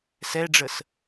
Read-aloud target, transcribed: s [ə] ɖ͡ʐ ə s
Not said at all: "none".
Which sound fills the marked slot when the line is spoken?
ɛ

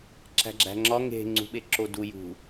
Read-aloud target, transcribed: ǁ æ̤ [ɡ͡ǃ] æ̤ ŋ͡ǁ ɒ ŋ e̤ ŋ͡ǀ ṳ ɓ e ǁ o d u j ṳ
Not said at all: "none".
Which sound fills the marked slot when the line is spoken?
ɡ͡ǁ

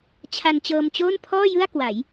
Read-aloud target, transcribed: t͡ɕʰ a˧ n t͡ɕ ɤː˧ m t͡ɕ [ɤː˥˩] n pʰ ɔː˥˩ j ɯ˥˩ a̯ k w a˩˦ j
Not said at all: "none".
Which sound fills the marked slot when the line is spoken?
oː˥˩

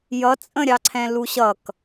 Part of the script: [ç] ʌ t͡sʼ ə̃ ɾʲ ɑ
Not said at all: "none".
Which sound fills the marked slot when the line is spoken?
j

